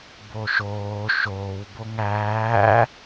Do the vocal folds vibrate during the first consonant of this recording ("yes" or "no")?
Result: yes